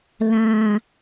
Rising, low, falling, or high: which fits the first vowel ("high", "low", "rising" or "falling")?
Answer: low